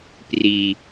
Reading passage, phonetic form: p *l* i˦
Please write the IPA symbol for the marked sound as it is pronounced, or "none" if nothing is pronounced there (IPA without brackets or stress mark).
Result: r